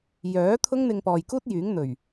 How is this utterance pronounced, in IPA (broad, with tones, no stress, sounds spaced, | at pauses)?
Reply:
j œː˨˥ t̪ʰ ʊ˥ ŋ n̪ ɪ˧ ŋ p ɔː˨ j k uː˥ t̚ j yː˨˥ ŋ n̪ ɵ˨˩ ɥ